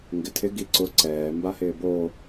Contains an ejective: no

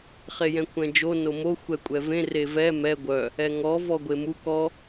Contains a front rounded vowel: yes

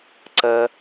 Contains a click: yes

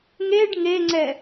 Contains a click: yes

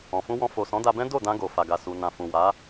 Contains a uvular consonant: no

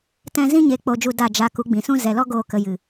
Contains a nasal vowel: yes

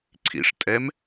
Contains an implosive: no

